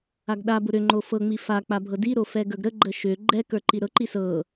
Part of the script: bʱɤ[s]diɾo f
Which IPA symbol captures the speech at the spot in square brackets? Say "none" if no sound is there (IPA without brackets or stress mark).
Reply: none